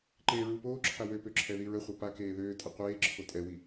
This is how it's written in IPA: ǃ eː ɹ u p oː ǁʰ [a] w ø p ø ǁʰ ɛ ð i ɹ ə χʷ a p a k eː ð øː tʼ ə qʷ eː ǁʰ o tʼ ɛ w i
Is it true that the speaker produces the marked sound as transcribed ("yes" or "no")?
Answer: yes